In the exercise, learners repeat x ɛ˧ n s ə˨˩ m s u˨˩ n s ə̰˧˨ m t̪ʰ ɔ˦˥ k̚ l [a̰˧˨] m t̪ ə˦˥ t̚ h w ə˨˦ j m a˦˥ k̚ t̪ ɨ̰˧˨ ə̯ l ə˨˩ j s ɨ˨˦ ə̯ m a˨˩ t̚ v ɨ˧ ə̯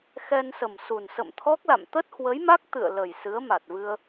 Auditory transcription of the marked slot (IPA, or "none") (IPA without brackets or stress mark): a̰˧˨